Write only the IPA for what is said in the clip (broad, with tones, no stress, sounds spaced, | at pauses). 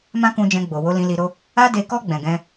m ã˦ k ũ˧ d͡ʒ ɛ̃˧ ɡ͡b o˨ w o˧ l ĩ˧ l i˧ ɾ o˦ | a˦ d e˧ k ɔ˦ ɡ͡b ɛ̃˧ ɡ ɛ̃˦